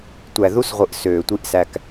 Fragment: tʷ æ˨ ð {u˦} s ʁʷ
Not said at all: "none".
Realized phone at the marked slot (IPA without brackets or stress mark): u˦